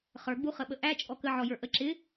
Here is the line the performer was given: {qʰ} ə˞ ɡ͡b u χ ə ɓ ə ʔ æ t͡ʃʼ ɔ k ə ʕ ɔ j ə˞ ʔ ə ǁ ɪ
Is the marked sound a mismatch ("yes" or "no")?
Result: yes